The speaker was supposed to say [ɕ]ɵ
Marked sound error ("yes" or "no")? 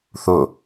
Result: yes